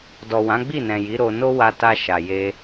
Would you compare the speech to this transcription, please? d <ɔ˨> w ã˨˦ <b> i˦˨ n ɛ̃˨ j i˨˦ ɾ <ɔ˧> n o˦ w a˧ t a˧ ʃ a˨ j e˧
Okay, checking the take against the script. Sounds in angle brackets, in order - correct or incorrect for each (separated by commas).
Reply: correct, incorrect, incorrect